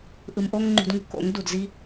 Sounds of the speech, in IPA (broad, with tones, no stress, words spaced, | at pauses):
ʔɯ˧mʔo˦ŋ ŋ͡ǃṳ˧dŋṳ˦ko̰˨˦ŋ du˨dzi˦